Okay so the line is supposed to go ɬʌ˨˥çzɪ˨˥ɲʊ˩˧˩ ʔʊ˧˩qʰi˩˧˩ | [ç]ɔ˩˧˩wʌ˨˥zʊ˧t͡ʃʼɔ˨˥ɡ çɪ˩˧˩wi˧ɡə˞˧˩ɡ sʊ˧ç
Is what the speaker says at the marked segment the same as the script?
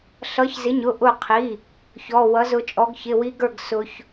yes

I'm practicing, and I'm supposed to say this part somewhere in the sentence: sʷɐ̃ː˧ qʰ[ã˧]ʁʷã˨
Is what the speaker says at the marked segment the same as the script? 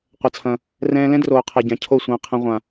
no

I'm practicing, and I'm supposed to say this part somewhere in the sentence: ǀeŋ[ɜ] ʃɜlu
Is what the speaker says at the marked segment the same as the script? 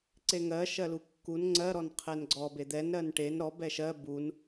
yes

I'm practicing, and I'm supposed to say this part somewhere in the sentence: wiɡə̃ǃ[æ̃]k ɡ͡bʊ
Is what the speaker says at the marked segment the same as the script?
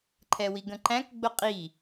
yes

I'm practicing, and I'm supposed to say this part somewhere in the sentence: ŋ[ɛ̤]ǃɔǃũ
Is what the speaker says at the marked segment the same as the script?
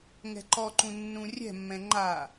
yes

